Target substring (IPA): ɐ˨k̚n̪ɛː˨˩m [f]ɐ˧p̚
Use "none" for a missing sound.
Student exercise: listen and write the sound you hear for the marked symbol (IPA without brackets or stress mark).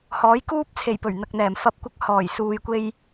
f